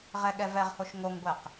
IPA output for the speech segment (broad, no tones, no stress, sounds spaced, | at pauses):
ʁ ɛ ɠ ɛ v ɛ ʁ h o ʃ ŋ o ŋ ɡʷ ɛ q